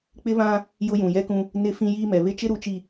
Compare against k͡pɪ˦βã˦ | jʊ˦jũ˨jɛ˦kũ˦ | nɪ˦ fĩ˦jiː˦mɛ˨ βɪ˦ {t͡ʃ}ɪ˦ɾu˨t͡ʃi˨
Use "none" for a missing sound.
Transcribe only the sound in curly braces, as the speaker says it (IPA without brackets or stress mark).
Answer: t͡ʃ